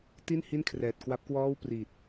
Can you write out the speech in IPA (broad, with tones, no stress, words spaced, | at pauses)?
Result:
ti˥˩nhi˥˩n kʰrɛː˨˩t̚kwa˦˥p̚kwɔː˥˩w priː˨˩t̚